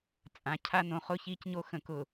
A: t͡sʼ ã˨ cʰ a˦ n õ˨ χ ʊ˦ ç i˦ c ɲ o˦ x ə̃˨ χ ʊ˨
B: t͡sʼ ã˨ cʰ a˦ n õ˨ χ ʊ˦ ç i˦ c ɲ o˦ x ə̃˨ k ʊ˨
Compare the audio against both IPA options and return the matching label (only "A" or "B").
B